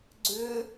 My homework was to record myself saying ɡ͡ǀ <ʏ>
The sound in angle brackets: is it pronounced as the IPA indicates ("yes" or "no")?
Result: yes